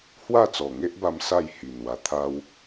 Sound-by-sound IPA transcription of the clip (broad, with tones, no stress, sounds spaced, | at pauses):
h w a˥˧ t͡s ɔ˨˩ ŋ e˦ ʔ b a˧ m s a˥˧ j h i˨˩ n w a˧ t̪ʰ a˦ w